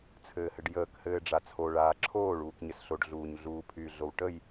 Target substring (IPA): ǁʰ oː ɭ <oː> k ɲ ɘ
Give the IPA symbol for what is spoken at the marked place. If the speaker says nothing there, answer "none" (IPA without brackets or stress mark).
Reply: uː